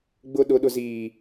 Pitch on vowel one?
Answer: high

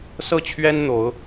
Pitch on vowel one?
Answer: falling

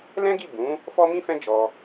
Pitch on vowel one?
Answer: high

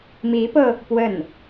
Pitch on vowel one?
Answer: rising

